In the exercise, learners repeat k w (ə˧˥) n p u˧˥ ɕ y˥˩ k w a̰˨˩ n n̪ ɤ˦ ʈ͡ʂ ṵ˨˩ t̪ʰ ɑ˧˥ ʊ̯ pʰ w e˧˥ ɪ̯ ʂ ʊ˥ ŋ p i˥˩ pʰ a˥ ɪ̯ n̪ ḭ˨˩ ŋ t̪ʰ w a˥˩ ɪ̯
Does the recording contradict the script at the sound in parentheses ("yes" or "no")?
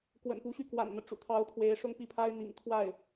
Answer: yes